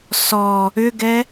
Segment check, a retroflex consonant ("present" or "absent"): absent